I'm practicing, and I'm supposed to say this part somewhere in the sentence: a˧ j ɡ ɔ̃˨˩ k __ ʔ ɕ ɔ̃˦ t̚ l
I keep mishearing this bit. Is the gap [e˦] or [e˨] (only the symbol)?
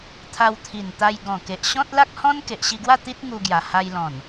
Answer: e˨